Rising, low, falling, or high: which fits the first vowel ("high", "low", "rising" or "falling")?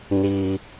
high